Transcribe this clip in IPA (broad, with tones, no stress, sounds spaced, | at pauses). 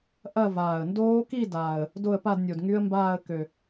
ʔ ɐ˥˧ v aː˨˩ ə̯ n d oː˦˥ k i˥˧ d aː˨˩ ə̯ | d o˥˧ ə̯ p a˥˧ d nʲ o˨˩ d ŋ y˦˥ ə̯ m b aː˥˧ ə̯ k ø˨˩